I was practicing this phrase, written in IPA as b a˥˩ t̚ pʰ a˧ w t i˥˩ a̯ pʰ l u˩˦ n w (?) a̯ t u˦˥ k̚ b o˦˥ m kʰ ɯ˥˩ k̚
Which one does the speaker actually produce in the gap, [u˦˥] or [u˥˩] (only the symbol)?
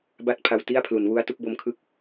u˦˥